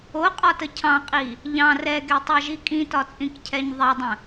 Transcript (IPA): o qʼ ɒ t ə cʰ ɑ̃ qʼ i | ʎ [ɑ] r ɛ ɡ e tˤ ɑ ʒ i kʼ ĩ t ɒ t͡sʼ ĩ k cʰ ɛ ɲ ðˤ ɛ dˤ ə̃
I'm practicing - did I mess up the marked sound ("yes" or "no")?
yes